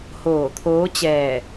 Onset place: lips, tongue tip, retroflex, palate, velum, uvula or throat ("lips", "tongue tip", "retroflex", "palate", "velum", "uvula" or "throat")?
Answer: throat